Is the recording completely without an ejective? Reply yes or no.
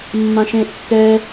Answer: yes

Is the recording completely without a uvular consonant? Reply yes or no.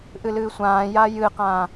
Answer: no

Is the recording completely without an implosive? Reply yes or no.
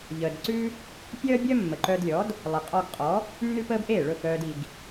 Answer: yes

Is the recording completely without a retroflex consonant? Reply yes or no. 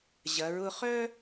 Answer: yes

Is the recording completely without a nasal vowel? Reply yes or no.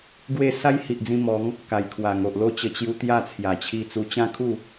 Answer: no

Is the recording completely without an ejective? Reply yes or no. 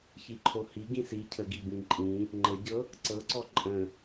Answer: no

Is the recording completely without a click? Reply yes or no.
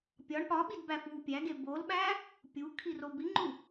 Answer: no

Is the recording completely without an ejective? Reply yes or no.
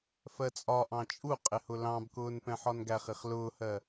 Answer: no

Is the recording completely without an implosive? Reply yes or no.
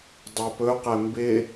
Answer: yes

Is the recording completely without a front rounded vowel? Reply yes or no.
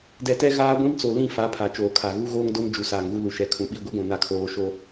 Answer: yes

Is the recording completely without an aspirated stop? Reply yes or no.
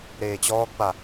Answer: yes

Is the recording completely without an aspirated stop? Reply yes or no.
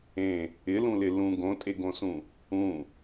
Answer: yes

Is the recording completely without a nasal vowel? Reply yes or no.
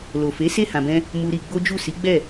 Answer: no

